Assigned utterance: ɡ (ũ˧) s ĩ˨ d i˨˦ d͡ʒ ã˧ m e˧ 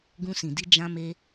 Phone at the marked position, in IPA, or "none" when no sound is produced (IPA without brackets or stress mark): ũ˧